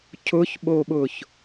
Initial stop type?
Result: aspirated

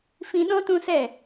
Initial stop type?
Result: implosive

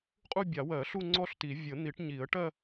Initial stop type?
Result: ejective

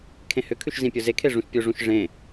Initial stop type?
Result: aspirated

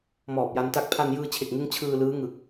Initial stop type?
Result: plain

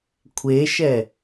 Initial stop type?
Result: aspirated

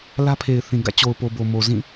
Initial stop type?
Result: aspirated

